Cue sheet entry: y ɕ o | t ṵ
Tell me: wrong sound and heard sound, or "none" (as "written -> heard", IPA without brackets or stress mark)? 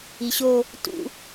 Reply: y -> i